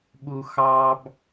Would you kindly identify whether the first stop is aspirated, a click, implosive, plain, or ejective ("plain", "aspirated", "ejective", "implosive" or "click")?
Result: implosive